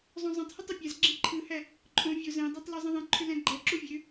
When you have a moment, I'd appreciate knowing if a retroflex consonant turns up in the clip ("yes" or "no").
no